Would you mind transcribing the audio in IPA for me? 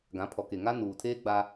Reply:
ɡ ã˨˦ pʰ ɔ˨ k e˨ ŋ a˦ n uː˨ tʰ eː˦ ɡ͡b a˦

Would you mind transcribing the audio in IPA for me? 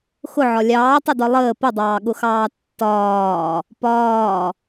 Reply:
x ʊ ʕ ɒ lʲ ɑː tˤ ʊ d ɒ lˠ əː p ə dˤ ɑː ɠ ʊ x ɑː tː ɒː | p ɒː

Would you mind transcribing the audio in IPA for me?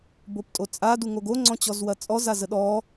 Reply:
b o p tʼ o t͡sʼ a d u ŋ o ɡ o ŋ͡ǀ ɔ̃ t͡ɕ ɔ z w ɐ t͡sʼ ɔ z a z ə ɗ ɔ

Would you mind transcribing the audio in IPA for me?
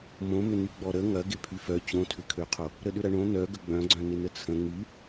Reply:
m õ m ʏ n y ɡ͡b ɔ ɾ ə ŋ ɐ ɡ ɪ pʰ y f œ t͡ɕ õ tʰ ʏ kʰ ø qʰ o | ɾ ə ɗ ʏ ɾ ɐ ɳ õ n œ ɡ ə ɡ͡b œ̃ ɡ͡ǀ œ̃ n ɪ n ə t͡sʰ ə̃ ŋ y

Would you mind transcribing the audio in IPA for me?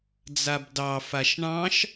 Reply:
d͡z a b d ɑ f a ʃ ɳ ɑ̃ ʃ

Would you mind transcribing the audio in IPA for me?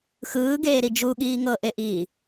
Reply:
x ɯː ɡ eː ɾ i d͡ʒ u ɠ iː ŋ ɤ ʔ e ʔ iː

